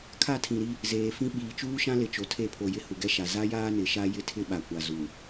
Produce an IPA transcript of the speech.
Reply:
kʰa˦˨tʰĩ˨ɾi˦ | zeː˨fĩ˦ ɓiː˨t͡ʃuː˦ʃã˦lɪ˨ t͡ʃo˨tʰe˦˨pʰo˨ jɪ˦hu˨ɡɛ˦ʃa˨ za˦jaː˦ nɪ˨ʃa˦ jɪ˦tʰɪ˦ɓa˨kʷa˨ zu˨

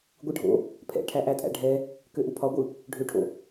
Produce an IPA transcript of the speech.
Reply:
ɡʷɯɖʱo̰ | pʰɛ̰ʈʰæ ʔætʼæ̰ɖʱɛ | køʔupʰɒɡʷɯ | ɖʱøʈʰo̰

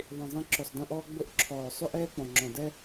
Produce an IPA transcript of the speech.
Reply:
ðˤĩ˨zˤĩ˧ ǁʊ˨sˤdẽ˧ʔɔː˧ ɡ͡bʊ˧ʔǁʰɔː˨ sˤʏ˦ʔɛː˦k͡pɔ̃˨ ŋ͡ǁɔ̃˨dɛ˦

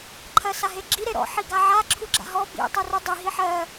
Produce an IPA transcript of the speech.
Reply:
ǃʰɜsaɦeɡ͡ǁi ɾeɾɔ̰ ħiɡaʕa ǁʰuɡ͡ǁa̰ɦɔ bḭ tˤɛrudˤi ɦiħɜ

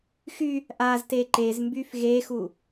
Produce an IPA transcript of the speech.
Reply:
xy | ʔazte ǃezmbyf ɣexu

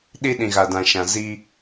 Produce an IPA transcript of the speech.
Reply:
ɗi˦ɗĩ˨ɣa˨dã˨ ʃã˨zi˦

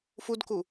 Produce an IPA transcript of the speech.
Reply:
fudku

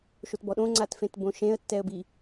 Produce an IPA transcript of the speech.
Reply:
ʃotbɔɗõ ŋ͡ǀatfẽtbõʃẽə̯ tːɛə̯bi

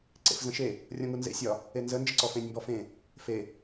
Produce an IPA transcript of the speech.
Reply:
ǀḛfzə̃ʃe | rʲɔ̃ŋunzḛ sʲɒ | enzə nd͡ʒəǀɔfẽnʲ mbɔfẽ | fe

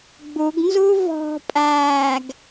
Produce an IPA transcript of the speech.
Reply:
ɡ͡buɡnzu vɔ̤pʼæːɡ

